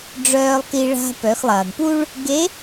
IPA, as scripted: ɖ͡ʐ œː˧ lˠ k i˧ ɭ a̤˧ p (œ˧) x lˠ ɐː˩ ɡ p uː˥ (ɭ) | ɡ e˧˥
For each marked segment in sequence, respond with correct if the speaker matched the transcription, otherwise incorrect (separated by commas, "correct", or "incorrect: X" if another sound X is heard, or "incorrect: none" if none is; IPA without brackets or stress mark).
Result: incorrect: œ˩˧, correct